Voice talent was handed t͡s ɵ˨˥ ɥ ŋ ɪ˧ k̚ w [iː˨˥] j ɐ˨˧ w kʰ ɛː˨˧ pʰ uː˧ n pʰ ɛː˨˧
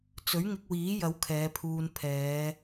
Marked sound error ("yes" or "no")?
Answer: no